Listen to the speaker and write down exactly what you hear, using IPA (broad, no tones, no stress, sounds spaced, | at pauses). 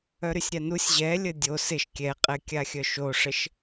œ ɾ y sʲ ɾʲ a n u sʲ ʑ ɛ lʲ ə dʲ o s ɪ ʃ kʲ ɛ qʼ ɛ kʲ a xʲ œ ʃ o ʂ ə ʃ